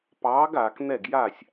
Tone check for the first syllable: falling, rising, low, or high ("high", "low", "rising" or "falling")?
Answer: rising